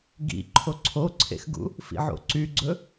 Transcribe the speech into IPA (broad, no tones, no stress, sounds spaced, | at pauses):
ɡ ḭ ǃʰ o ǀʰ o ǀʰ ḛ x ɡ ṵ | f ḭ ʕ o̰ ǀ y ɡ͡ǀ ɵ